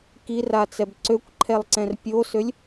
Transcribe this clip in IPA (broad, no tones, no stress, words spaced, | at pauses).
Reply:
kirat͡sɛb ǀøkʷǃʰɛlˠǀɛ̃r pʲosølʲ